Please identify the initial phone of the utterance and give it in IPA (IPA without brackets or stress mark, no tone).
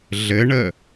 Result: ɮ